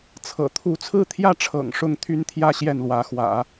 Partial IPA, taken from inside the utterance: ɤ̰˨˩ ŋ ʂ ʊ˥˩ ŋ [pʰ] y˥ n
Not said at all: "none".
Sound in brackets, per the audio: t̪ʰ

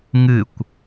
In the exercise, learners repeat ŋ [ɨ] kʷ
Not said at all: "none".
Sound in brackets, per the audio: ɨ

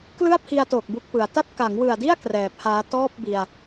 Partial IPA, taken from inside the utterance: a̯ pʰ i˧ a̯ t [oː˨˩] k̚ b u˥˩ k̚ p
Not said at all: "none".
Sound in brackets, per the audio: oː˨˩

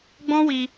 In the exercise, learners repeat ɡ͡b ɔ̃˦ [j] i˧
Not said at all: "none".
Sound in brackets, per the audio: w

